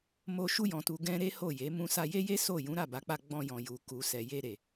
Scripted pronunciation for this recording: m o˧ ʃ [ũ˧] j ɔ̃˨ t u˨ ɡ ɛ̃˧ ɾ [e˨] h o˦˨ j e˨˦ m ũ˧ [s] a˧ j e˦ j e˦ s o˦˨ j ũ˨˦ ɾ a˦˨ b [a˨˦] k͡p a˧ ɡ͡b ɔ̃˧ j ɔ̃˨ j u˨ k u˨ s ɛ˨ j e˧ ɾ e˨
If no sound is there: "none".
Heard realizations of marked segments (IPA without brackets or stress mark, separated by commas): u˧, e˦, s, a˨˦